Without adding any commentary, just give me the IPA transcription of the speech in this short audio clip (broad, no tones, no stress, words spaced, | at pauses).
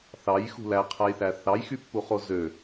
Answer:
θɑjxṳ læqʰæjθæ θɑjxypːuχo zø